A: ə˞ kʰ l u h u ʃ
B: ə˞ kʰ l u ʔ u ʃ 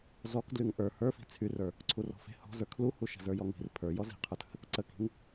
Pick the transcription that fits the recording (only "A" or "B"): A